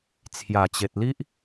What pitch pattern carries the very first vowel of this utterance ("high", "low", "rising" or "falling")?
low